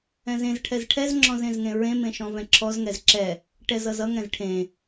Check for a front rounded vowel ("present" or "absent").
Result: absent